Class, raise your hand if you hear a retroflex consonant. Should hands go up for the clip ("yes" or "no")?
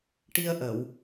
yes